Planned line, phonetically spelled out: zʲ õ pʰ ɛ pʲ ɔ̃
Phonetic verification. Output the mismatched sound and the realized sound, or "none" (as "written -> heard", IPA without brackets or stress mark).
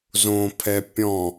zʲ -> z